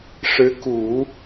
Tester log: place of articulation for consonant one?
retroflex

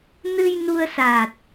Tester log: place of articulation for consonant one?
alveolar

